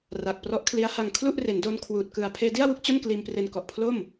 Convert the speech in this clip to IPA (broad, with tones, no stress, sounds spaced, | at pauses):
r a˨˩ k̚ p r ɔ˦˥ ʔ kʰ l i˦˥ a̯ h a˧ ŋ kʰ l u˥˩ ʔ r e˩˦ n d o˧ n kʰ w uː˨˩ t̚ k ɯ˨˩ a̯ pʰ eː˧ d i˥˩ a̯ w u˥˩ k̚ t͡ɕ o˥˩ n k l iː˧ m p r e˧ n k ɔ˨˩ ʔ pʰ l o˥˩ m